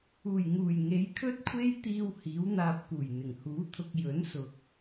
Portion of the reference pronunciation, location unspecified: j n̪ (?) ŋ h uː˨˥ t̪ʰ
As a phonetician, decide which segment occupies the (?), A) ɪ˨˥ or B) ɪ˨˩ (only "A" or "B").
B